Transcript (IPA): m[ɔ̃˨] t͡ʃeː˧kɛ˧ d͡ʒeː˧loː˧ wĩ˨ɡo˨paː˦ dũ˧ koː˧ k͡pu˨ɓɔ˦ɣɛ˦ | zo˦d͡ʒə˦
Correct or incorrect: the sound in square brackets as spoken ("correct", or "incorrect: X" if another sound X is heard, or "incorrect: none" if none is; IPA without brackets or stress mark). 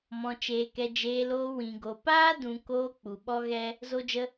incorrect: ɔ̃˧